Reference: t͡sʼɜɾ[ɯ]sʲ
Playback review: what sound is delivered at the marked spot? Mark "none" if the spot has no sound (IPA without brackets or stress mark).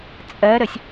ə